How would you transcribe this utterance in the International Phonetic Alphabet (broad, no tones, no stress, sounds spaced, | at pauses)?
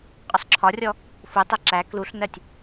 qʼ ʊ sˤ ǁʰ ɒ rʲ ɔ | f u tˤ ɛ ǁ æ k l u ɬ n ɜ tʲ